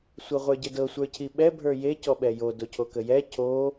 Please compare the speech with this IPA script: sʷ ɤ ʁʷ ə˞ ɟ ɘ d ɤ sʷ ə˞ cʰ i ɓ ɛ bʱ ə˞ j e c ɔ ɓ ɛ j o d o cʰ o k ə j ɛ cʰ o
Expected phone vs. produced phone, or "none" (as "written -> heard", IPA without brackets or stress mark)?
none